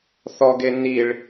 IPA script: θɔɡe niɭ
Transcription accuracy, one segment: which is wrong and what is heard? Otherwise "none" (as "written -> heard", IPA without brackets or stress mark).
none